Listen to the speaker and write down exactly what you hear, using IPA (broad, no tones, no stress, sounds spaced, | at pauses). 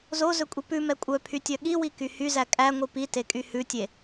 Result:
z o z ɵ kʷʼ i p ʉ m ɛ kʷʼ œ pʰ y tʲ œ ɠ i w i k y h y z æ kʼ æ ŋʷ i p i t e kʼ y h ʉ tʲ e